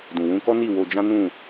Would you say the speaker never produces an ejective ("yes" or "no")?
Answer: yes